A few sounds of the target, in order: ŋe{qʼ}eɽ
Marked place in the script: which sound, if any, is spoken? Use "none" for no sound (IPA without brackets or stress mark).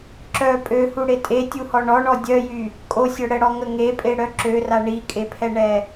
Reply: pʼ